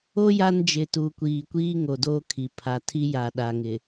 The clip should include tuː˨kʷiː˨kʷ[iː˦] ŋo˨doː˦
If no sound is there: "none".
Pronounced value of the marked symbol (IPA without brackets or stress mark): iː˦